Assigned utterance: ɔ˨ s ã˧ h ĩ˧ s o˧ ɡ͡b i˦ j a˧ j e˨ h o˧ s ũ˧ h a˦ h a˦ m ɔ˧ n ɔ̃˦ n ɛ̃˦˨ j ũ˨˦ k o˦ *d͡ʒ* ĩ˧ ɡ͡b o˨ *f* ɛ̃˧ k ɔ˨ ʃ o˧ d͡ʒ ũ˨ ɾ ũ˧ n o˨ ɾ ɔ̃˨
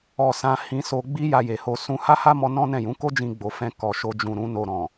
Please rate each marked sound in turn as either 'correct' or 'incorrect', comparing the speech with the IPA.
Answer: correct, correct

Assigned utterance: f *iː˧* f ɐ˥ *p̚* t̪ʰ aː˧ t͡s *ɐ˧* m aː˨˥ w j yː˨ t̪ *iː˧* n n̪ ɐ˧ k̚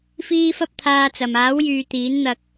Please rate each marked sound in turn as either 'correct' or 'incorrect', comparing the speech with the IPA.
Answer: incorrect: iː˥, correct, incorrect: ɐ˨, incorrect: iː˨˥

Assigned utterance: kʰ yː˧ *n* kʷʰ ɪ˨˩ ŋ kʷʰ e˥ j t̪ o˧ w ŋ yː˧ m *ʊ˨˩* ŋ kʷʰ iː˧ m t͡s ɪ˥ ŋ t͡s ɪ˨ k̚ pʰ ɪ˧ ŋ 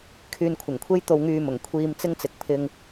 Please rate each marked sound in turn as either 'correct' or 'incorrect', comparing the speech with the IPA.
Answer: correct, correct

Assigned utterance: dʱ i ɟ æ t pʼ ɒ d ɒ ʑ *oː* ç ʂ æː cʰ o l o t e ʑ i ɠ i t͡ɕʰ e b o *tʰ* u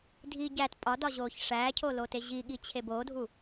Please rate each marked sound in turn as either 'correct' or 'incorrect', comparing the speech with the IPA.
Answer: correct, incorrect: dʱ

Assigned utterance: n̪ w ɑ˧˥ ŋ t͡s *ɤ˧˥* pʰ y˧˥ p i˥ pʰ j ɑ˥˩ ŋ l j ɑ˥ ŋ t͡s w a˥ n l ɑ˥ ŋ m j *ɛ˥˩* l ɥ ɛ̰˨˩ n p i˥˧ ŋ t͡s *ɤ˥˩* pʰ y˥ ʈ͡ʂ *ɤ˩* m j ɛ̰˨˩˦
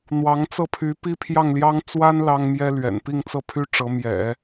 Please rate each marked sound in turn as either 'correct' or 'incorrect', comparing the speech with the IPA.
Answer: incorrect: ɤ˥˩, incorrect: ɛ˥, correct, incorrect: ɤ˧˥

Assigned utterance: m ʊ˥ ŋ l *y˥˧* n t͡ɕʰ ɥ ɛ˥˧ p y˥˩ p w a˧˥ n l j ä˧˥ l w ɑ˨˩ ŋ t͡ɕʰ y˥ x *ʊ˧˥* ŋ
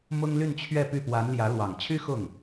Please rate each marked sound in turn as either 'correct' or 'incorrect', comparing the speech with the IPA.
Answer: correct, incorrect: ʊ˥˩

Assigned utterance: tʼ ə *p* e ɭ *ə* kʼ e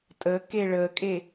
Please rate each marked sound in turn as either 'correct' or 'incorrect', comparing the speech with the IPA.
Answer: incorrect: k, correct

